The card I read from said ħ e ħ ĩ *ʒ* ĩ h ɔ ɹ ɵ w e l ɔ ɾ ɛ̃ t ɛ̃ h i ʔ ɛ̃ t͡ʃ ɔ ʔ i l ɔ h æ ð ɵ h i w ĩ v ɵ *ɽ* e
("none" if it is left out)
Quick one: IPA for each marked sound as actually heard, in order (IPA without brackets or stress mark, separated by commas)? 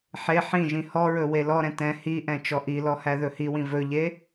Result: ʒ, ʎ